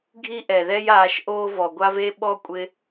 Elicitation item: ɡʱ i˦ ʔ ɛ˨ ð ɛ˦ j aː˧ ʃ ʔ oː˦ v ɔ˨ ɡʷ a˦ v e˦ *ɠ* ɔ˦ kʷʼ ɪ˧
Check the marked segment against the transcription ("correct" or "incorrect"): incorrect